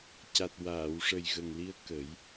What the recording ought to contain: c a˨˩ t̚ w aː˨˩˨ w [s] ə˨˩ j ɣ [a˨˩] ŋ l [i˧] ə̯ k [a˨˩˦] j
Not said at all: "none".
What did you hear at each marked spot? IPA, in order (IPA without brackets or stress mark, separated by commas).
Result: ʂ, ə˨˩, i˧, ə˨˩˦